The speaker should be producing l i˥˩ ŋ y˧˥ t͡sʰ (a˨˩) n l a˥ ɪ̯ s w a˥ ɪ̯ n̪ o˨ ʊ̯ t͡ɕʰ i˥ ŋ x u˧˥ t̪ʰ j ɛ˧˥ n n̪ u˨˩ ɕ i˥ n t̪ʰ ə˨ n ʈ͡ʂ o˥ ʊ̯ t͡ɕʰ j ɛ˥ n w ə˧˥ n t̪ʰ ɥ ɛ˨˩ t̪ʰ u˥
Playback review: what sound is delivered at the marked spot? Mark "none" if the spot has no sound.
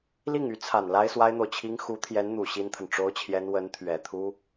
a˨˩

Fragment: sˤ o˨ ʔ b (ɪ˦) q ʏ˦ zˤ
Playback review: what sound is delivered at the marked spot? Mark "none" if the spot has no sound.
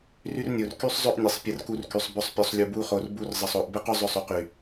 ɪ˦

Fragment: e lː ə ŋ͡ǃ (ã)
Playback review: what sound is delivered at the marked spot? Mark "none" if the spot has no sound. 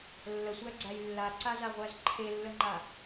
a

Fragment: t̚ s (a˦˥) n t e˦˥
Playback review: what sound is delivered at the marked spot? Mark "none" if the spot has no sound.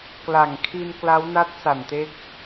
a˨˩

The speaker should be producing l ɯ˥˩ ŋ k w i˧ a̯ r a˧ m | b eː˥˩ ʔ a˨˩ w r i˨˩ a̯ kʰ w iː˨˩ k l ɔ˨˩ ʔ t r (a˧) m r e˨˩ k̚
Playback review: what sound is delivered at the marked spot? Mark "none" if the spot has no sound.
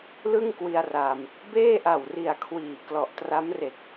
a˦˥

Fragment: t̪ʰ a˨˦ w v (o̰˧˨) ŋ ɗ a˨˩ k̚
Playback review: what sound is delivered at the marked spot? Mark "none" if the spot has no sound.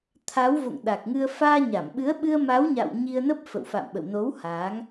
o̰˧˨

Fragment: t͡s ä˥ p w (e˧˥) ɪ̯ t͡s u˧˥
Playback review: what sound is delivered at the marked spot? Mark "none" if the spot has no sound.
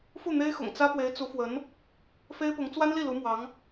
e˧˥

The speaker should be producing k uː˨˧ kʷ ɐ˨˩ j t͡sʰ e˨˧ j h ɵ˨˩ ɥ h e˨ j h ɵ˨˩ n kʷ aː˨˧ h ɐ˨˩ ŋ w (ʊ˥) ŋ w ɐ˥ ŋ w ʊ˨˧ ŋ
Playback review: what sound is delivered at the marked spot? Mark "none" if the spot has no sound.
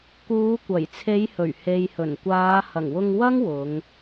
ʊ˧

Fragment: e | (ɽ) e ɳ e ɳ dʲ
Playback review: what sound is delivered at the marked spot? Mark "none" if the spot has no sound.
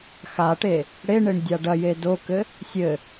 ɽ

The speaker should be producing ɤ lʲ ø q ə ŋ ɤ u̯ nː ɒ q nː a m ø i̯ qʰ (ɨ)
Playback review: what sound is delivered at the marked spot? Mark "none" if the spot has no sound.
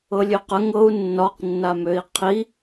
i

